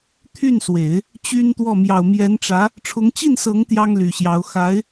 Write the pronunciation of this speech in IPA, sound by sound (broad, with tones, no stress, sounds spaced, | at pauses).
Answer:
t̪ʰ y˥˩ n s w e˨˩˦ ɪ̯ | t͡ɕ y˥ n t̪ w ɔ˥˩ m j ɑ˨˩ ʊ̯ m j ɛ˧˥ n ʈ͡ʂ ä˧˥ | ʈ͡ʂʰ ʊ˧˥ ŋ t͡ɕ i˥˩ n s ɤ˧˥ ŋ t̪ j ɑ˥ ŋ l y˨˩ ɕ j ɑ˧˥ ʊ̯ x a˧˥ ɪ̯